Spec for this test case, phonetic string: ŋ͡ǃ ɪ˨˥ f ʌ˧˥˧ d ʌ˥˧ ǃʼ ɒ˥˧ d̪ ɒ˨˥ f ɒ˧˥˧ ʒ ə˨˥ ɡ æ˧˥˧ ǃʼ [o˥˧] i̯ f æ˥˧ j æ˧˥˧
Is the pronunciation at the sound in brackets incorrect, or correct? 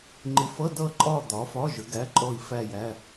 incorrect